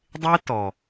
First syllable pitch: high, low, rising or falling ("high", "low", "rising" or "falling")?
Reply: high